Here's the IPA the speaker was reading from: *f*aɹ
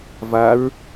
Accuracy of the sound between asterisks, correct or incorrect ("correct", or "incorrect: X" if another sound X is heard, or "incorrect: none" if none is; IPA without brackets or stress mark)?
incorrect: v